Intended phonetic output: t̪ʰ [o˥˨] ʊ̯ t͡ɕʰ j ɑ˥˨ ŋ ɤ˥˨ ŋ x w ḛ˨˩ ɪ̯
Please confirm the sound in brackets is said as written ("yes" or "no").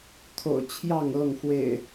no